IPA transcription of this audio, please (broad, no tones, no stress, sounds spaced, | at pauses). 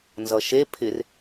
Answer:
n z ʌ ʃ e pʰ ɪ r